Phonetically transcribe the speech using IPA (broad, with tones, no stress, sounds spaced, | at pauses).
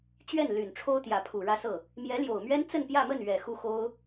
t͡ɕ ɥ ɛ˥˩ n l y˨˩ n ʈ͡ʂʰ o˥ ʊ̯ t̪ j ä˧˥ pʰ u˨˩ ɻ ä˥˧ s ɤ˥˩ | m j ɛ˧˥ l j o˨˩ ʊ̯ m ɥ ɛ˥ n t͡s ə˥˧ n p j ä˥˧ m ə˥˩ n ɥ ɛ˨˩ x u˥˩ x o˥ ʊ̯